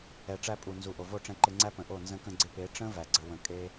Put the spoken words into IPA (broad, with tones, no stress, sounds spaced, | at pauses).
ɛ˨ ʈ͡ʂ æ˧ pʼ u˨ n z u˨ ʔ o˨ v o˦˨ ʈ͡ʂ ɛ̃˧ ǃ ɪ˧ ŋ͡ǀ æ˦ p ə̃˨ ʔ o˦˨ n z ə̃˧ k ə̃˧ ɡ͡ǀ ɪ˧ p e˨˦ ʈ͡ʂ ə̃˦ v æ˧ ɡ͡ǀ ə˦ w ə̃˦˨ kʼ e˦